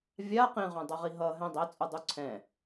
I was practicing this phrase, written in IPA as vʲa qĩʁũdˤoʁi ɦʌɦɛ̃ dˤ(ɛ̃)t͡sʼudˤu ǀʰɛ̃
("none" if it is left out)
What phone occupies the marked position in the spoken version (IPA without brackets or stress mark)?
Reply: ɛ